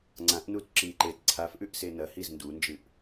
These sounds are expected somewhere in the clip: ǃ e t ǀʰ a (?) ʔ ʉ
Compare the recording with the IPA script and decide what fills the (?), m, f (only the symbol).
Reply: f